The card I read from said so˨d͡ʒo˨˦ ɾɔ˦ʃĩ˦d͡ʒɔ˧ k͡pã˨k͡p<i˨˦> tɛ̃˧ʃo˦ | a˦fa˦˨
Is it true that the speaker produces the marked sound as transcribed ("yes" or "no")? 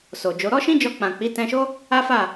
yes